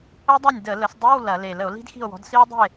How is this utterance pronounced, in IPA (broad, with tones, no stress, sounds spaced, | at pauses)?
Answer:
ə˦˥ dˤ ɐ˥˩ nʲ d ə˧˩˧ l ə˨˦ s dˤ i˧˥˧ w l ɐ˧˩˧ l e˨˩ l ə˧˩˧ o̯ l i̤˦˥ d x i̤˥˩ o̯ w ɔ̤˨˦ d s i˦˥ w dˤ ə̤˥˩ e̯